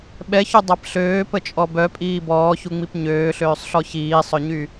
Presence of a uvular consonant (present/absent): absent